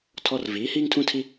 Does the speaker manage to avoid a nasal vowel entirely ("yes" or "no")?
no